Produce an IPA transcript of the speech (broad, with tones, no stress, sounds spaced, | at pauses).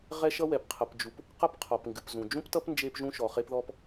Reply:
ʁ ɛ˥ ʃ ʌ˥ w ɛ˩ p qʰ ʌ˩ p d͡ʒ u˩ p | q ʌ˥ p qʰ ɔ˩ p ŋ ɡ ɨ˩ p z ũ˩ d͡ʒ ũ˥ p t ʌ˥ p n d͡ʒ e˥ p ʒ ũ˥ ʃ ɔ˩ χ e˥ p ð ɔ˥ p